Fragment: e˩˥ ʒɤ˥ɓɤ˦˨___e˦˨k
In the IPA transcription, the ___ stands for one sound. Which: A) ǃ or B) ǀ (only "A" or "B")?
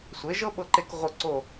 A